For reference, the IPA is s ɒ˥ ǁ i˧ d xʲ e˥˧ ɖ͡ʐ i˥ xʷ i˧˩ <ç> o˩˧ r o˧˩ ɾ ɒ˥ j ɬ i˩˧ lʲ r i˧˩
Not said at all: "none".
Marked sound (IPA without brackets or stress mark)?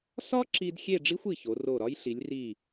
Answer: ç